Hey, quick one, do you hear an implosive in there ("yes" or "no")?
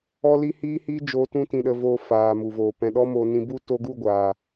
yes